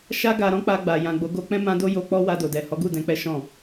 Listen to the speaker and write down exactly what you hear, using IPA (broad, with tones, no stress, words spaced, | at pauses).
ʃa˦ɡa˧ ɾɔ̃˦k͡pa˧ɡ͡ba˨ jã˨ɡ͡bo˨˦ɡo˧k͡pɛ̃˦ mã˦do˦ jo˧k͡pɔ˦ wa˧do˨dɛ˨ hɔ˨˦ɡu˦˨dɛ̃˧k͡pɛ˦ ʃɔ̃˦˨